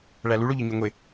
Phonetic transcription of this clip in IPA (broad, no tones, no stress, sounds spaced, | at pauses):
ɭ æ l u ɭ o ʎ ɒ ɲ u ŋʷ e